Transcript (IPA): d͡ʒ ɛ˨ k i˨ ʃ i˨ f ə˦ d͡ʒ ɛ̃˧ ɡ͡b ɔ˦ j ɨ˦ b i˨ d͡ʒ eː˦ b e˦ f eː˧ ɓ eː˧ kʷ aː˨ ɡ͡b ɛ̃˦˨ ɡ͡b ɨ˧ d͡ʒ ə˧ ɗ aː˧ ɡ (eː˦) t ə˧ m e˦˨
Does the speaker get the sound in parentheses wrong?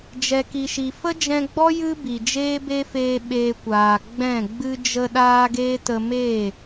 no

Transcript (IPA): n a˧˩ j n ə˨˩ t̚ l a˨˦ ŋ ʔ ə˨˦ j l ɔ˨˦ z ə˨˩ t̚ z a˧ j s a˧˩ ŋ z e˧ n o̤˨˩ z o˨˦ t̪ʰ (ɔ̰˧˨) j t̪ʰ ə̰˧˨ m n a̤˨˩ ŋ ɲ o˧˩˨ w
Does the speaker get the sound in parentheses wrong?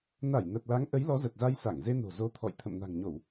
no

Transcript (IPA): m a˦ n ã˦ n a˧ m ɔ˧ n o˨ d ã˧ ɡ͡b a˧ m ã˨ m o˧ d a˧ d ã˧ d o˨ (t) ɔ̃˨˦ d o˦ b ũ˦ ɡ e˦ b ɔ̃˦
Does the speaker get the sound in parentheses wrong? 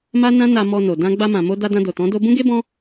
no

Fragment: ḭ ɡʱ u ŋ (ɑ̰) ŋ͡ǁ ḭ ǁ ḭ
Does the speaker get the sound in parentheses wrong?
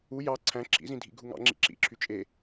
no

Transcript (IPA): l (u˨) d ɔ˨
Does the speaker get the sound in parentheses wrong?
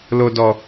yes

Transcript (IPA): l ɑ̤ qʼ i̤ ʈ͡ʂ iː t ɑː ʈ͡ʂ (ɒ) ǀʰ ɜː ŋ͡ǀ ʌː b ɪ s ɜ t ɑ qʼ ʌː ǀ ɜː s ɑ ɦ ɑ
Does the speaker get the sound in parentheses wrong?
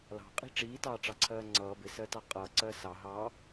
yes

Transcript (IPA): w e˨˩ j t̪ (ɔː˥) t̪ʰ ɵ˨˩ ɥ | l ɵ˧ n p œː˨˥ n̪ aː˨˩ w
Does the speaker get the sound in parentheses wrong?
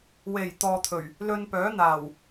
yes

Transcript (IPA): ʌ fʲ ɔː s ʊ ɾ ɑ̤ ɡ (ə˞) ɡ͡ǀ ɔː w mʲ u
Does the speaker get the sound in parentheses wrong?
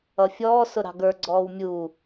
no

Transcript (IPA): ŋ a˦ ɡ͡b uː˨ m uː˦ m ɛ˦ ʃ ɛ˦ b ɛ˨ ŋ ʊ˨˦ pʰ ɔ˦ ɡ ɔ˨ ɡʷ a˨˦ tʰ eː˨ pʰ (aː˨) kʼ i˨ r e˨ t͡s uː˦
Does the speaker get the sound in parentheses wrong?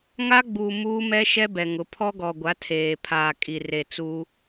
no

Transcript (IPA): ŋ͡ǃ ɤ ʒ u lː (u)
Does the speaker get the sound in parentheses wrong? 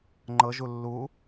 no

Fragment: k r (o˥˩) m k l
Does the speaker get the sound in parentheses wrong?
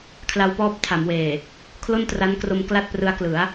yes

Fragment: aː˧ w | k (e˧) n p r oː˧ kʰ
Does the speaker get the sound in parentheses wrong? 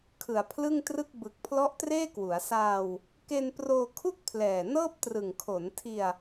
no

